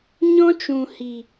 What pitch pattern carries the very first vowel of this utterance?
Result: high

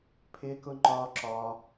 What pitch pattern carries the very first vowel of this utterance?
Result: high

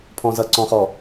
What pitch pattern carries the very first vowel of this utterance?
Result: low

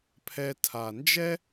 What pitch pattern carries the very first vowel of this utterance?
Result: low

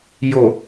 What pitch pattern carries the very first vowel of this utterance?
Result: low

